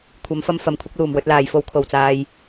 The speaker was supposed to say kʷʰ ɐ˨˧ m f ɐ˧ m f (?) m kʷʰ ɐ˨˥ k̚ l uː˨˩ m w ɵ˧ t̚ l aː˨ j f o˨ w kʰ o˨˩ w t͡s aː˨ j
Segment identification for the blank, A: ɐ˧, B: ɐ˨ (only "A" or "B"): B